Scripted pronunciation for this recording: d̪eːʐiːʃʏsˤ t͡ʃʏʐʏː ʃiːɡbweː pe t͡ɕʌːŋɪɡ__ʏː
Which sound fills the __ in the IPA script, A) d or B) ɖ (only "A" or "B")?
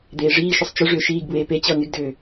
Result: A